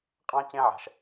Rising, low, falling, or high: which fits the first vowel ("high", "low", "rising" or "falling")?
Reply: high